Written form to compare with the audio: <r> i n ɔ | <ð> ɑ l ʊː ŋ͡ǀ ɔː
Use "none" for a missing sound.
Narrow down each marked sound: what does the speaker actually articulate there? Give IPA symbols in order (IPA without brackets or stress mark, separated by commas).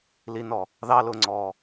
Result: l, ð